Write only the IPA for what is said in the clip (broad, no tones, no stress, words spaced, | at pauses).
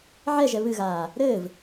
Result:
ʕɛʒɛ βɨɣaː | ɾɘːv